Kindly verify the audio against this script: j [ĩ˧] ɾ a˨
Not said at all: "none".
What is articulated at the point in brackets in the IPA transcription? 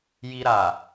i˧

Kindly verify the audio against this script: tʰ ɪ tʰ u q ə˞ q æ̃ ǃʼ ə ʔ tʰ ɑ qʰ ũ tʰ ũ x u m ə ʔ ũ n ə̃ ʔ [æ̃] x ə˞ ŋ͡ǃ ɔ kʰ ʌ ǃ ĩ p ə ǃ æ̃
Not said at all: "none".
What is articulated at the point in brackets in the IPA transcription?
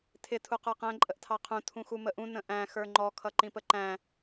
æ̃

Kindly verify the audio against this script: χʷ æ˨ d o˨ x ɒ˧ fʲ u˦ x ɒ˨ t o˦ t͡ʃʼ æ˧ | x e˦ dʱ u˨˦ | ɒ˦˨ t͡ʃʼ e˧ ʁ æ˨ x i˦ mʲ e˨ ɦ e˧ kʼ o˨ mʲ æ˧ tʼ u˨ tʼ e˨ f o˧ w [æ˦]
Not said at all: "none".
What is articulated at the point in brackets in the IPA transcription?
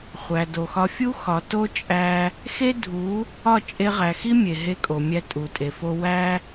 æ˦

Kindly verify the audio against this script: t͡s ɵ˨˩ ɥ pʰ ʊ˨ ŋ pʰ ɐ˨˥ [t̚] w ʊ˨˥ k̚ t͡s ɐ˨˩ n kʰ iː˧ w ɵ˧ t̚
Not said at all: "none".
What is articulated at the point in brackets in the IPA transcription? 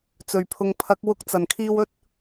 k̚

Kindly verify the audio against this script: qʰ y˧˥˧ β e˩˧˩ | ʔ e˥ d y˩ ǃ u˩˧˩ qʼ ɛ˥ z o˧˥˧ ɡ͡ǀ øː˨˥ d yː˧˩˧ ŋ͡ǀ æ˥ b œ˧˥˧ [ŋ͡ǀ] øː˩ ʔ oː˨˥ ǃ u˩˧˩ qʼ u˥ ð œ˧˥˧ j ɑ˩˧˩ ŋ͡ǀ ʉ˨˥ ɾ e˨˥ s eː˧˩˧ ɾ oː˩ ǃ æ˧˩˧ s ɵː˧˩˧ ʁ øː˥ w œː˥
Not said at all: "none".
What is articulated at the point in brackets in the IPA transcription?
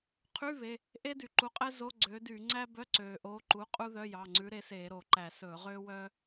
ǀ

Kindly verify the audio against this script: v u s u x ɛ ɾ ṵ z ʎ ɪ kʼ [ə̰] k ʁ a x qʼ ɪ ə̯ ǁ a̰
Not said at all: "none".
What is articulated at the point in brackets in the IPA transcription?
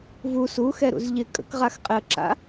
ə̰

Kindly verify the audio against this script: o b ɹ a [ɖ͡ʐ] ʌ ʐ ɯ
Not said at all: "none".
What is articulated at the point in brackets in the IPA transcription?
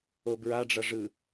ɖ͡ʐ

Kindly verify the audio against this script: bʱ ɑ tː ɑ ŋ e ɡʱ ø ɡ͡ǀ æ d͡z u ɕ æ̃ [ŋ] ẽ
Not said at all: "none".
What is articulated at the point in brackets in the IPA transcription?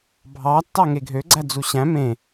m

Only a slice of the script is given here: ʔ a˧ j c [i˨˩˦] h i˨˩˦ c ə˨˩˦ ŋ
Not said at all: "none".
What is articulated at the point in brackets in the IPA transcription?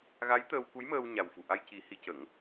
i˨˩˦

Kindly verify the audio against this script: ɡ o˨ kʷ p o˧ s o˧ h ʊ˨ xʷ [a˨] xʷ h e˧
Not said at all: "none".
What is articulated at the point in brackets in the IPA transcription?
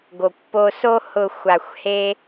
a˨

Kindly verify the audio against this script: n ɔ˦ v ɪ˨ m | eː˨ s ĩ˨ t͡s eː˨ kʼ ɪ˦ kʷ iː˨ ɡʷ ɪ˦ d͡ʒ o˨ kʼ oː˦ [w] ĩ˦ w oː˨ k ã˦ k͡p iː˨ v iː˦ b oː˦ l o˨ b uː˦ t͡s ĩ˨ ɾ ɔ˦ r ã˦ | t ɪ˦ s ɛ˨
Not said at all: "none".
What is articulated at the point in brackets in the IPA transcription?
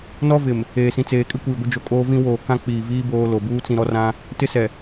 v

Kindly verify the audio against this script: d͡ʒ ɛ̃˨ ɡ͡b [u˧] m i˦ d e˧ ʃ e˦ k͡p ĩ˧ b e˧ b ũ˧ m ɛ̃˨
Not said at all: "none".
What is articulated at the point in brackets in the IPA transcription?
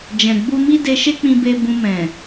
u˧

